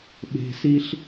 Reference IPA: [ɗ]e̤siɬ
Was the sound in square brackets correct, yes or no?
no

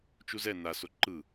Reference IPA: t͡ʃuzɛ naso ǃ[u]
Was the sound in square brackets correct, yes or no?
no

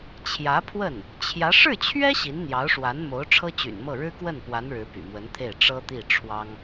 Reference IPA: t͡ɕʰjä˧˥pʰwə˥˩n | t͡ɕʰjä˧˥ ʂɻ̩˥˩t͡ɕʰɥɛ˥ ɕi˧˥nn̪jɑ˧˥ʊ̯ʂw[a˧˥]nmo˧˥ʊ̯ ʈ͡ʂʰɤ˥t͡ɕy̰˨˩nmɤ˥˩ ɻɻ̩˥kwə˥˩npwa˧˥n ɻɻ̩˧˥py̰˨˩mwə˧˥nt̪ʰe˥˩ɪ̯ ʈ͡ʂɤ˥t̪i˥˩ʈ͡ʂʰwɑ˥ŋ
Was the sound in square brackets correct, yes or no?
yes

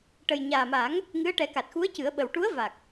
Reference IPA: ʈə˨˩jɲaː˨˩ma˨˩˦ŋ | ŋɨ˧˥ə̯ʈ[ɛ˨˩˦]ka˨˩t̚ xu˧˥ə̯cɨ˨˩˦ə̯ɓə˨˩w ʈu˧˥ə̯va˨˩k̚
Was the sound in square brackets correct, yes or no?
yes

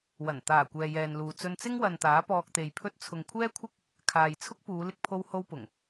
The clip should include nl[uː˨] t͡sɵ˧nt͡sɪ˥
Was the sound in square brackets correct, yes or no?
yes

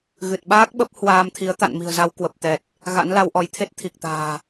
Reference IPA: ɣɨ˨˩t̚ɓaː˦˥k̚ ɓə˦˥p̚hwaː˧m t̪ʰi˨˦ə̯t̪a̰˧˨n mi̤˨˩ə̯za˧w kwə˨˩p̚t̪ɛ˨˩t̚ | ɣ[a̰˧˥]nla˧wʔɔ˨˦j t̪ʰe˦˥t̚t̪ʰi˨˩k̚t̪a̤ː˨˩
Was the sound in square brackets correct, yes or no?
yes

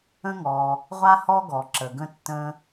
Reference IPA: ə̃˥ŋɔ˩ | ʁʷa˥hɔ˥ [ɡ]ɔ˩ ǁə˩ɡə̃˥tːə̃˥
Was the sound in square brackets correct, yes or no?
yes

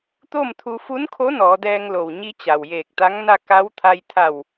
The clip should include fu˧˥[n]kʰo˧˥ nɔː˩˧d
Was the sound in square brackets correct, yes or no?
yes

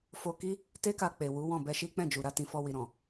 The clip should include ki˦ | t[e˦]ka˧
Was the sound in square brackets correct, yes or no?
yes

